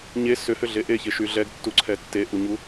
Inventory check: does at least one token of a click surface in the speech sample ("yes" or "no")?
yes